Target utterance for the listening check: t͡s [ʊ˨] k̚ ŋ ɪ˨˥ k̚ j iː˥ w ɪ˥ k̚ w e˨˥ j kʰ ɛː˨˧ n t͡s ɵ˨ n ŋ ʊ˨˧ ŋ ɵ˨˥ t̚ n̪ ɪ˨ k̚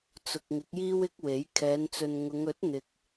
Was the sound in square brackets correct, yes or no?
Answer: yes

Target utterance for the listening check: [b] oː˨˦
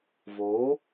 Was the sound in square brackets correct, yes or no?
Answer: no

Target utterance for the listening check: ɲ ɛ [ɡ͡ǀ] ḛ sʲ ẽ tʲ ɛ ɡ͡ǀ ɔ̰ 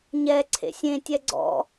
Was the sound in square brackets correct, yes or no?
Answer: no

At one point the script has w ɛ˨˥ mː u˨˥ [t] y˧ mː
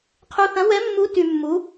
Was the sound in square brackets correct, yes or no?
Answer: yes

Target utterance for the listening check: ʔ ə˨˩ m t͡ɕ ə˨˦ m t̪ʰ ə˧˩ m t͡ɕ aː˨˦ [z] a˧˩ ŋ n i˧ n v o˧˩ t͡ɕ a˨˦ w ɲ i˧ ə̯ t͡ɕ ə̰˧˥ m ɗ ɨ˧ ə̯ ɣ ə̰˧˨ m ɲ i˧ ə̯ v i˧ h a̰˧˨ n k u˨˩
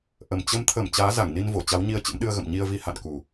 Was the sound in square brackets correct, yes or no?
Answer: yes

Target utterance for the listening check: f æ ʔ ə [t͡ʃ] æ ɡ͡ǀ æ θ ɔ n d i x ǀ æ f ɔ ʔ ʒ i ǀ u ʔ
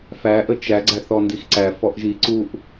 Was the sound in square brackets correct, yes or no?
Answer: yes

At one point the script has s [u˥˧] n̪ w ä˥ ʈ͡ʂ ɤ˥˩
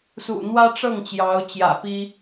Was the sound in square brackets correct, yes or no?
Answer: no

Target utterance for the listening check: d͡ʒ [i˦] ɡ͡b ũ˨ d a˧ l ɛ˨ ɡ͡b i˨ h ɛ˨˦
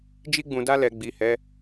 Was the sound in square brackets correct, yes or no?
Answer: no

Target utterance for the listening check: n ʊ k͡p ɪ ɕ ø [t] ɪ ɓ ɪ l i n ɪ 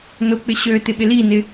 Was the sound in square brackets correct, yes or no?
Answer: yes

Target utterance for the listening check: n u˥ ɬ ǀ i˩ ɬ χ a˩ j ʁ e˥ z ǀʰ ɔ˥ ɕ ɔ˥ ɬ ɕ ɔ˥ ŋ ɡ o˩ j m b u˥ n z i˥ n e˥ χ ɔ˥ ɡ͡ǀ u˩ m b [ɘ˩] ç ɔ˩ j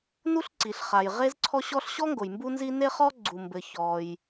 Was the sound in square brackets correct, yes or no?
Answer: yes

